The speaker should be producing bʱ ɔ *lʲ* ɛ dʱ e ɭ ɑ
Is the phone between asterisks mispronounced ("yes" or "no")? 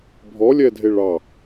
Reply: no